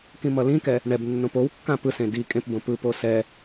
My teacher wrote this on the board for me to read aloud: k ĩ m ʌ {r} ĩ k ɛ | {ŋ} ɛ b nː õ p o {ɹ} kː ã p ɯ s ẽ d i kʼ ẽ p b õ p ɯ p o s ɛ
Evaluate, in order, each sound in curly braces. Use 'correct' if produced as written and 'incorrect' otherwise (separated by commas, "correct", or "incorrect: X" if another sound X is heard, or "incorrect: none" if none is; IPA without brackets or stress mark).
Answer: incorrect: l, incorrect: ɳ, incorrect: w